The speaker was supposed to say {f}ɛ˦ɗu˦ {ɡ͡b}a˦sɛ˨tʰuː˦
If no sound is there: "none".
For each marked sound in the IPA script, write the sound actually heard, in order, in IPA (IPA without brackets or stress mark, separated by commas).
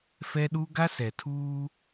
f, ɡ